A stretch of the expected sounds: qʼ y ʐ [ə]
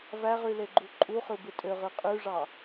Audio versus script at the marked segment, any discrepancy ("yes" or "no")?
yes